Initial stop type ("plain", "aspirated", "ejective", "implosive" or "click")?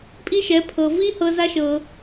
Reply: ejective